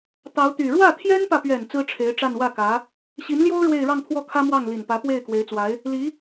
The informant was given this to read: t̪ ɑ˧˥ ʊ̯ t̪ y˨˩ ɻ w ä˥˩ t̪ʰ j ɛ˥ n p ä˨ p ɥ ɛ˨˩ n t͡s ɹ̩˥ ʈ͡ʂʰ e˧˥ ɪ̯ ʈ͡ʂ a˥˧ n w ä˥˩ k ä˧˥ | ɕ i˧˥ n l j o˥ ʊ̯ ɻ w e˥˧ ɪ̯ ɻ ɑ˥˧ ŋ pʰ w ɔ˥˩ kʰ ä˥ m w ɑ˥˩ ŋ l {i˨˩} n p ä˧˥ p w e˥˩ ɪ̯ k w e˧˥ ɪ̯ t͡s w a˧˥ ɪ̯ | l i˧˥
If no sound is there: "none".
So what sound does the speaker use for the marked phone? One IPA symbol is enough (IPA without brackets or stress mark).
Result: i˨˩